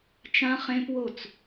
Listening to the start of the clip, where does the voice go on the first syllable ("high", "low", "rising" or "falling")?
high